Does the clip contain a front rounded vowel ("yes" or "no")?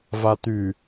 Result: yes